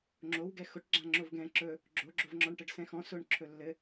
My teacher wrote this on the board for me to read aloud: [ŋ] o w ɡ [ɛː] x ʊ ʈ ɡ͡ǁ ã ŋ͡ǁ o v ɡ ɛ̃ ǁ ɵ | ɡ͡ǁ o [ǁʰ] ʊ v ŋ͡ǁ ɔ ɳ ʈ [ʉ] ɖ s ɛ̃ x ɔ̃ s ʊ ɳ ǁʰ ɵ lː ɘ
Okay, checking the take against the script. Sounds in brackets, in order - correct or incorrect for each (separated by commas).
incorrect, incorrect, incorrect, incorrect